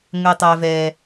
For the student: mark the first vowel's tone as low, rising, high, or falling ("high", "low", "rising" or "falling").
high